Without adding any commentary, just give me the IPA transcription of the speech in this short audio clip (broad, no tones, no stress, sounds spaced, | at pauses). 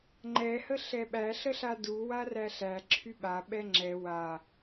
ŋ͡ǃ ɛ h ə ɬ ɛ ɓ æ ɬ ə ɬ a d u w a r æ ɬ æ ǁʰ y ɓ a ɓ ɛ ŋ͡ǁ ɛ w a